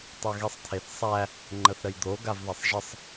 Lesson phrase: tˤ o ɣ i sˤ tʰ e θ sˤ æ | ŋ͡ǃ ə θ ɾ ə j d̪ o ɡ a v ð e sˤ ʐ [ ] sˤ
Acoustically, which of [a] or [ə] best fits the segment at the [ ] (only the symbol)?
ə